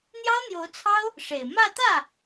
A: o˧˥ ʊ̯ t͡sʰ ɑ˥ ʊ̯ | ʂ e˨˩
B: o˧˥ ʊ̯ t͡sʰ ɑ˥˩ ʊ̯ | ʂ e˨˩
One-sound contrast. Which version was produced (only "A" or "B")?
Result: A